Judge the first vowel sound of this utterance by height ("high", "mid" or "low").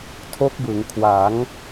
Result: mid